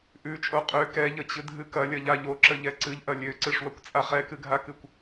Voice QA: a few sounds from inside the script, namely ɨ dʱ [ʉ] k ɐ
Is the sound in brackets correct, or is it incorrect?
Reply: incorrect